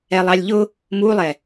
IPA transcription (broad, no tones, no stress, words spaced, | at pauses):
ɛlˠɑlʲʎʊ | mulˠɛ